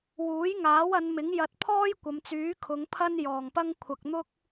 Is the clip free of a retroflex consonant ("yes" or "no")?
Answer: yes